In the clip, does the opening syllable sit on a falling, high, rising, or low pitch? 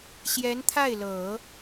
rising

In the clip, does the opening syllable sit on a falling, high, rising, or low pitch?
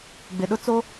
low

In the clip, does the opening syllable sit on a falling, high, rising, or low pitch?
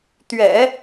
low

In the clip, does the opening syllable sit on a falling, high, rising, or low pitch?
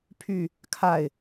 falling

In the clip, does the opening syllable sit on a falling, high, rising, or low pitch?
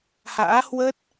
rising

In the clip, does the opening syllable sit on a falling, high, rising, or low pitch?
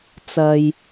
low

